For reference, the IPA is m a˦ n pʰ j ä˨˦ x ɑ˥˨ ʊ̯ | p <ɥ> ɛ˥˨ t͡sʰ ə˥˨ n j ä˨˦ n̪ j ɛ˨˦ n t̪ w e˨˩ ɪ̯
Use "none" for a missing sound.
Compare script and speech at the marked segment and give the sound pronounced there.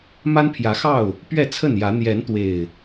ɥ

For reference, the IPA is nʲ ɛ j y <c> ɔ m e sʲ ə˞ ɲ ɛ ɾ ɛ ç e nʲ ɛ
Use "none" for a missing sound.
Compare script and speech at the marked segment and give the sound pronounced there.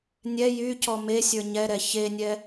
c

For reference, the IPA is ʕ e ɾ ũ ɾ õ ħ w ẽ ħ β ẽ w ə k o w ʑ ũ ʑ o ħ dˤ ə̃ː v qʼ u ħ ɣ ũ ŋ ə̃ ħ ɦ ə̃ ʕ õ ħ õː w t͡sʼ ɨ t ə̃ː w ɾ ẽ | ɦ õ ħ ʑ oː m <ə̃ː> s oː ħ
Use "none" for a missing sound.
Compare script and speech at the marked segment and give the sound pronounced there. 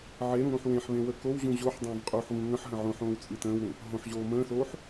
ə̃ː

